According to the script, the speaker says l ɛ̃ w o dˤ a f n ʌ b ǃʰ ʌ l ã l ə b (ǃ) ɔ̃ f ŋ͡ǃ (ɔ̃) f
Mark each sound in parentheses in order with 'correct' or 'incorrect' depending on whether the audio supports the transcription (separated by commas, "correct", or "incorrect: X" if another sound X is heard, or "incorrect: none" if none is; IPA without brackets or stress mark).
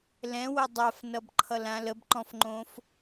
correct, incorrect: õ